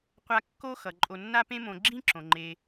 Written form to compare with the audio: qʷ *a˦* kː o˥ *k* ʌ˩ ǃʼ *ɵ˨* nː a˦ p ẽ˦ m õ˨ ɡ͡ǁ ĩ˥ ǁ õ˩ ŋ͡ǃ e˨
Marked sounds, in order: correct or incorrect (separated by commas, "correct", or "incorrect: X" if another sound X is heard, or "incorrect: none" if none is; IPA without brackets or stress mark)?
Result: correct, incorrect: x, incorrect: o˨